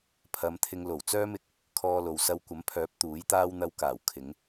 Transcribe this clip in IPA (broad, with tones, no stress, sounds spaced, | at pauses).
pʰ ɐ˨˧ m t̪ʰ ɪ˧ ŋ l o˨˩ w t͡s œː˥ m ɪ˨˥ k̚ | kʰ ɔː˧ l o˨ w s ɐ˧ w kʷ ɐ˨˥ m pʰ œː˨˥ p̚ t̪ uː˨˥ j t̪ aː˥ w n̪ ɐ˧ w k aː˨˩ w kʰ ɪ˨˧ ŋ